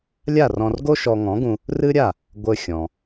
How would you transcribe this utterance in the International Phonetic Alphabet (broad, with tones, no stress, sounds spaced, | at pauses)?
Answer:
lʲ a˥˩ r ɔ̃˧ r ɡ o˥ ʃ ɔ˧ ŋ ɔ̃˩˥ ɡ ũ˧ | r ɨ˥ ɾʲ a˥˩ | ɡʷ ɘ˧ xʲ ɔ̃˩